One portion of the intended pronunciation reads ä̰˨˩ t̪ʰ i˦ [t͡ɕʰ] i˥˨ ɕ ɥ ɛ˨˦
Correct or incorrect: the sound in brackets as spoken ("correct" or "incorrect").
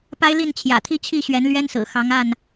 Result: correct